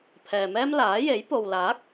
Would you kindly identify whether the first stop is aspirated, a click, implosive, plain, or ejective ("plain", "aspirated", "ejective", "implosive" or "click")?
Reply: aspirated